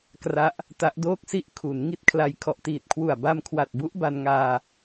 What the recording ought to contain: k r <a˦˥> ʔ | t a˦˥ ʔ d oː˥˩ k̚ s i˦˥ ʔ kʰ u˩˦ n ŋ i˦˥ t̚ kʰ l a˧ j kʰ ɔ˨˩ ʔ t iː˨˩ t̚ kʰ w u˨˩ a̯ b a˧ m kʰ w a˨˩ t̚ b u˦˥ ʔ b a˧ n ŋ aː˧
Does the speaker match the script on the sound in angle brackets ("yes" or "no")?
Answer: yes